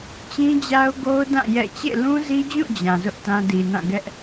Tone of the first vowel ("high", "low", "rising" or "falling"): high